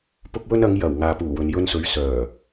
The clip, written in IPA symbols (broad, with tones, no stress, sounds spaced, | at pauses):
p ʊ˥ k̚ w ɵ˥ n ɐ˨˧ ŋ j ɐ˨˩ w ŋ aː˨ p uː˨˩ w ɵ˨ n j ɵ˧ n s ɵ˨˥ ɥ s œː˨˩